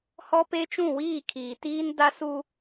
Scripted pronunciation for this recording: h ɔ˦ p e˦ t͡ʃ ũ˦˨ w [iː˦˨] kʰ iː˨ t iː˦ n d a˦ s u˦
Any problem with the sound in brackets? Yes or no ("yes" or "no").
no